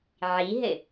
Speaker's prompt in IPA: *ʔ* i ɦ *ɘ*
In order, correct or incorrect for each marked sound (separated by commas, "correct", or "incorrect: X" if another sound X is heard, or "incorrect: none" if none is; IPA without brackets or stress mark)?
incorrect: ʕ, correct